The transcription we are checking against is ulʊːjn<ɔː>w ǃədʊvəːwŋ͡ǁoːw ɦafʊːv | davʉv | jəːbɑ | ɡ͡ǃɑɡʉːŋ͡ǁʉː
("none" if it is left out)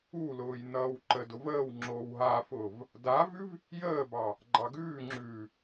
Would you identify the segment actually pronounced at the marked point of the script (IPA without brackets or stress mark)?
ʌː